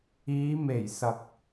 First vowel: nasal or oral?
oral